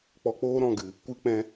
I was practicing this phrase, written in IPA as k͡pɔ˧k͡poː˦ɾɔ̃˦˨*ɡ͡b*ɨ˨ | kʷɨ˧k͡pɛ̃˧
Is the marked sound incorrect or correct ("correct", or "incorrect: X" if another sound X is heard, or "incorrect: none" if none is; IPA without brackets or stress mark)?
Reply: incorrect: ɡ